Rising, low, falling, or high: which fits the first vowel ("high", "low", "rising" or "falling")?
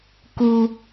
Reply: low